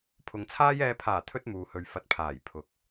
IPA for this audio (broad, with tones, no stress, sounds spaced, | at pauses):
pʰ ʊ˨ ŋ t͡sʰ aː˥ j ɛː˧ pʰ aː˨˩ t̪ʰ ɵ˥ t̚ m uː˨ h ɵ˨ ɥ f ɐ˨ t̚ pʰ aː˨˩ j pʰ ʊ˨˥ k̚